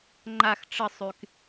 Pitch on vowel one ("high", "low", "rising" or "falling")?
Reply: low